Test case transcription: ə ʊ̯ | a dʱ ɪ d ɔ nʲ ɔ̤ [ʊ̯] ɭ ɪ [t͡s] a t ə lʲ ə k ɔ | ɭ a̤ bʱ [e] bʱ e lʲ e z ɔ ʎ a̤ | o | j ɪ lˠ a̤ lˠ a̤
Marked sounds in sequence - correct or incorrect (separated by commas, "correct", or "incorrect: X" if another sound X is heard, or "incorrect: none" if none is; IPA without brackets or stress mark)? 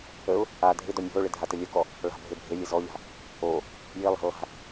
correct, incorrect: dʱ, correct